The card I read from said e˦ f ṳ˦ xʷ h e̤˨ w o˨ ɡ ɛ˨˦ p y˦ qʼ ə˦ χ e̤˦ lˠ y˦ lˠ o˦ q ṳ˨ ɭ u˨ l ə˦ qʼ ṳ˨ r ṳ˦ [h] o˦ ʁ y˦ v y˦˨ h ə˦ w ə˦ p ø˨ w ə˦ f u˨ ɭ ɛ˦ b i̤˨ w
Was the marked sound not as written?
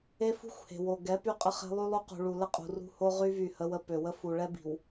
no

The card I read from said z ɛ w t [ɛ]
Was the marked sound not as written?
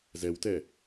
no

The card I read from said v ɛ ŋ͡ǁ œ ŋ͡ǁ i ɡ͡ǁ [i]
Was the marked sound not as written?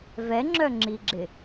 yes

